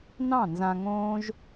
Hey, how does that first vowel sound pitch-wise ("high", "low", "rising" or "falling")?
falling